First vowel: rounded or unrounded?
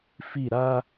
unrounded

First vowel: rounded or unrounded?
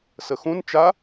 unrounded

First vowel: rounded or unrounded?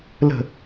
unrounded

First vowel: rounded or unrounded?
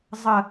unrounded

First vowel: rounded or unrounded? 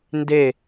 unrounded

